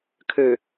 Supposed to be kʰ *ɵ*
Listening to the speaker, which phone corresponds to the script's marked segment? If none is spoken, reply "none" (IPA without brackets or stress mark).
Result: ø